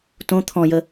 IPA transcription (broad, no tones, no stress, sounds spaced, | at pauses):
t õ t̪ʰ ɔ̃ j ə